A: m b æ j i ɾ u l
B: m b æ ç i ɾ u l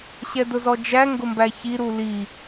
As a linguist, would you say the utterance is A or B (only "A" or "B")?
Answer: B